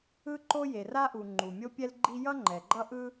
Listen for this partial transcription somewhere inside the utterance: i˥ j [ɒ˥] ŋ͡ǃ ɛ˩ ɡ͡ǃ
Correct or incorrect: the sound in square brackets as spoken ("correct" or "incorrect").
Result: incorrect